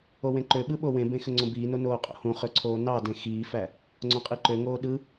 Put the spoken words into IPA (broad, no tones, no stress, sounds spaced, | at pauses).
o w ẽ ǃ ø ɓ ɯ ɓ o w ẽ b ẽ x ø ŋ͡ǀ õ b iː n o n oː qʼ o̰ h ũ χ ø ǀʰ oː n ɑ d ẽ x iː f æ | ŋ͡ǀ õ qʼ i ǃ ø ŋ oː ɗ ɯ